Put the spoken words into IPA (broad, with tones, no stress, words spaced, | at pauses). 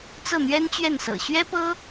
t͡sɤ˥˩n̪ɥɛ˥nt͡ɕɥɛ˥˩nsɤ̰˨˩ ɕɥɛ˥pɤ˥